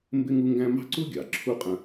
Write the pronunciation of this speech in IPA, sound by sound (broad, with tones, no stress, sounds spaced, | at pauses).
m b ɪ˥ ŋ u˥ ŋ ɡ æ̃˥ m ɑ̤˥ ǀ u˥ ɡʲ ɑ˩ ǁʰ u˥ qʼ ə̃˦